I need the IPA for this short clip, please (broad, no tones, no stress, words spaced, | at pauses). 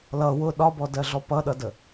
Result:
lʌ wʊ ɗɒbɔdɜɮɔ pʌɗʌdə